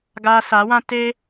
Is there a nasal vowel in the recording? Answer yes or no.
yes